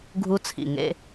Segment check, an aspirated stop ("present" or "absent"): present